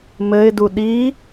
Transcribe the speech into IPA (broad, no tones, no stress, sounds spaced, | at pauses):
m ɘ ɪ̯ d u ɗ i